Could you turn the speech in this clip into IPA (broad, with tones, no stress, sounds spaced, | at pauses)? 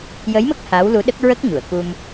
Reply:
j ə˧˥ j m ə˦˥ k̚ h a˧˥ w l u˧˥ ɗ ə˦˥ k̚ ɹ ə˦˥ k̚ ɲ u˨˩˨ ə̯ k u˧ m